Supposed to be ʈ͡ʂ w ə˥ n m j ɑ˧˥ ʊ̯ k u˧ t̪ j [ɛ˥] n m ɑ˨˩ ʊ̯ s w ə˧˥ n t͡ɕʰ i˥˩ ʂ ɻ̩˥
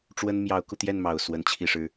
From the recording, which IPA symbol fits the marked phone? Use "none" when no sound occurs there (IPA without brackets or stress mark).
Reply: ɛ˥˩